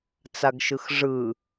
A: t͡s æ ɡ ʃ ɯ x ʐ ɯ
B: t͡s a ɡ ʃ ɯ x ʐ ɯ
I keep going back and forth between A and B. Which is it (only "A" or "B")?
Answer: B